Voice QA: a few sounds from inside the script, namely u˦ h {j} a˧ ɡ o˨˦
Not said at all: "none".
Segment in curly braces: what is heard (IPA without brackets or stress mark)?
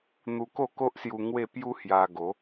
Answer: j